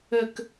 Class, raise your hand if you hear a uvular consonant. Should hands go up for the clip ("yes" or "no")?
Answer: no